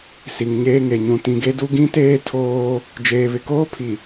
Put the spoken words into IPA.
si˨ŋɲeː˦ŋe˨ ɲũ˨tĩ˨ɡe˦du˦ ɡĩ˦teː˦ tʰoː˦ | d͡ʒeː˨βɪ˨koː˦pʰi˨

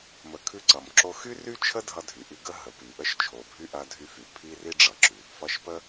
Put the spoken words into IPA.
mə˩kʰʉ˧ ǀʌ˩mǁo˧xy˥ ry˥t͡ʃʰə˥ dʱʌ˧dʱy˩ʔi˧ ɡə˥ ɦə˩ pi˩ʔə˧ʃt͡ʃʰo˩bʱy˧ ʔɐ˧dʱy˧fy˩ pʰi˥ri˥ɖ͡ʐʌ˩ǁʉ˩ | fʌ˧ʃpə˥

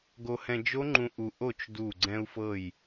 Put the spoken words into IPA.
ɡo˧hɛ̃˧d͡ʒo˦˥ŋ͡ǃũ˧ ʔu˧ʔo˥˨t͡ʃ du˧˩ ɡ͡ǀɛ̃˧u̯fɤ˧˩j

